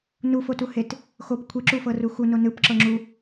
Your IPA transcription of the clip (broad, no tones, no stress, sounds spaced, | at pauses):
n u f o t u h e t | x o p kʷʰ i ǁ u f ɤ r u x u n o n ɯ p ǁ ɤ ŋ͡ǁ u